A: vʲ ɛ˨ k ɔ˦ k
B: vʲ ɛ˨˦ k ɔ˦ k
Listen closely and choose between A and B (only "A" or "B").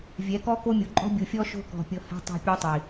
B